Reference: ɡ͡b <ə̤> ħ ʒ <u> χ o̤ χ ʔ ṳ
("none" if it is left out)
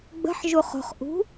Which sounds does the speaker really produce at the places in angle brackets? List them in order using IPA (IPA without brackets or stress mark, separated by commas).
ə̤, u